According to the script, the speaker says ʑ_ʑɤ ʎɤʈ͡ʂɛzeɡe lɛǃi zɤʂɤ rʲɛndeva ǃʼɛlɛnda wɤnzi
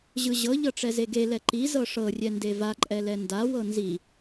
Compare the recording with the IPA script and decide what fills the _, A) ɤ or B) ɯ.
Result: B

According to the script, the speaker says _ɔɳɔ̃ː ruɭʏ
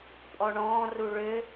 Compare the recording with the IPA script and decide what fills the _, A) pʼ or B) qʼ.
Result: A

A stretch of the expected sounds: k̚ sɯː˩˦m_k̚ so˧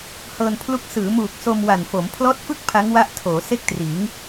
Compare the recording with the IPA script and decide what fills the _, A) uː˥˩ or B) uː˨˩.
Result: B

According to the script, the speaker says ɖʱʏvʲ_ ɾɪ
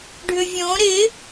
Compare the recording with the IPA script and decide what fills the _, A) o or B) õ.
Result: B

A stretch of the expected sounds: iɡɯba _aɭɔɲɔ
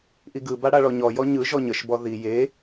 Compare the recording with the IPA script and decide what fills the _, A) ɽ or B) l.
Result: A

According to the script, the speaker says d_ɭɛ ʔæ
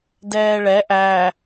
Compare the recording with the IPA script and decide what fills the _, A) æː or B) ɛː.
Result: B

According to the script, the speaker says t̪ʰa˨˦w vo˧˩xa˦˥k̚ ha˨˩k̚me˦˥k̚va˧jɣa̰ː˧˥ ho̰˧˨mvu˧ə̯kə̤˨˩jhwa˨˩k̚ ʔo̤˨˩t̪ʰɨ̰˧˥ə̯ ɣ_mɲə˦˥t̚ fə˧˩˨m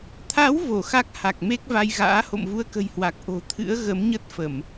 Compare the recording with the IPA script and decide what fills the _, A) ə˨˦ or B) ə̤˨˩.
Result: A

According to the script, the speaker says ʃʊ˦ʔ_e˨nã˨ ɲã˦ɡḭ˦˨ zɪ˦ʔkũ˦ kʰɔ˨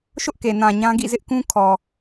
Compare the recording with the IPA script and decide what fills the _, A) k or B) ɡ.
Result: A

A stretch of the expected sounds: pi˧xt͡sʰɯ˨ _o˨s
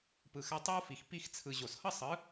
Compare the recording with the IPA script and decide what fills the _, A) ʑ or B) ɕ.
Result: A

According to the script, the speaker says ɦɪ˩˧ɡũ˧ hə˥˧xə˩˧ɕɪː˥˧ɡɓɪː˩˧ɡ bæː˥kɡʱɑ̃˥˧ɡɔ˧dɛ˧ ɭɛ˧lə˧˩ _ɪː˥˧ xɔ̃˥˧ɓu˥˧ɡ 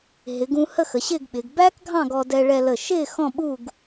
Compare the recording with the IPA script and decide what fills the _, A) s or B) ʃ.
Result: B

